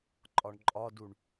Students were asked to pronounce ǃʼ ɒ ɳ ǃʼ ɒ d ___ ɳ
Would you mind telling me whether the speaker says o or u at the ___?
u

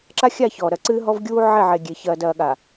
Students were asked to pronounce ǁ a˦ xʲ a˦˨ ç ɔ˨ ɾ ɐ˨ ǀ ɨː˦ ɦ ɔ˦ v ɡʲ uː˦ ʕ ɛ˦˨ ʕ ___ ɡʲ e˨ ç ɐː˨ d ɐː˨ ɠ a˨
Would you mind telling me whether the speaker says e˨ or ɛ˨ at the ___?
e˨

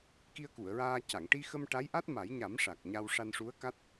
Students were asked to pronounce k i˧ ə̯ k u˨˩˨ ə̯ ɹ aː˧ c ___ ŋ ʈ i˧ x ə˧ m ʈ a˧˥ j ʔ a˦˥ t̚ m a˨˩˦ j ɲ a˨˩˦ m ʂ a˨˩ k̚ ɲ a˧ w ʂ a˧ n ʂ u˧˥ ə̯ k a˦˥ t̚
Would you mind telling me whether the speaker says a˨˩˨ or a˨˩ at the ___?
a˨˩˨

